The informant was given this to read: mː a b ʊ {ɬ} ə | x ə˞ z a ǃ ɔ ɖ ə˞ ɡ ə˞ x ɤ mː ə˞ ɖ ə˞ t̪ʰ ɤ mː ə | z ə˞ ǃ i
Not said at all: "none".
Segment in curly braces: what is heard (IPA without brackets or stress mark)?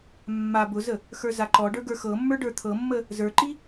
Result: z